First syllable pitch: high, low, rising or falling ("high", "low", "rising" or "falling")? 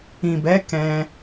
low